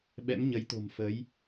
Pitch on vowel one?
rising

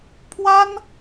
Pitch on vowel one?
high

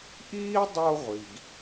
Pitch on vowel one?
high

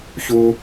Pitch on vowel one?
high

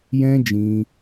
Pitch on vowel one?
high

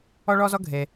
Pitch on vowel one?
high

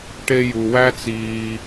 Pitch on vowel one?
high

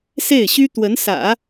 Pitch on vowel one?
falling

